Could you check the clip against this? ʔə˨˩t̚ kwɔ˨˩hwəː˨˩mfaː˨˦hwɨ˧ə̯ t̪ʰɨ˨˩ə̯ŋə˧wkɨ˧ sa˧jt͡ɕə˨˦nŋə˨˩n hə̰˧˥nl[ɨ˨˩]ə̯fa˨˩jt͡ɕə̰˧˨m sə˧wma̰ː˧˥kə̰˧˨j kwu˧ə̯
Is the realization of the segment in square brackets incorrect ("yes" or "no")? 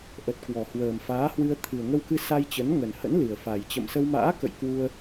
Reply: no